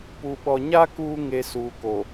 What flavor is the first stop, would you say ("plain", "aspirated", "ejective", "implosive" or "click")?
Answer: plain